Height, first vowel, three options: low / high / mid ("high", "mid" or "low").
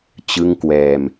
high